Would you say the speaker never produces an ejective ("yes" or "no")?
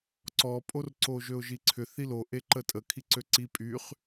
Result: no